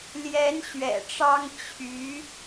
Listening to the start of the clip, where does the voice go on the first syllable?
rising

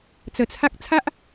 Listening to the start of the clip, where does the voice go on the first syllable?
low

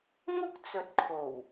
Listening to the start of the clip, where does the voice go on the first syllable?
high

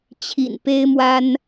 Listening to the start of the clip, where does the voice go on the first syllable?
low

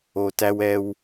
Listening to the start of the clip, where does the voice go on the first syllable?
low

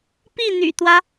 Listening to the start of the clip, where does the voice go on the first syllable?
falling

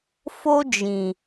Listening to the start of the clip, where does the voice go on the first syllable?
high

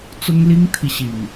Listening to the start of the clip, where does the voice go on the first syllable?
high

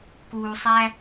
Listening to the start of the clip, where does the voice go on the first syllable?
low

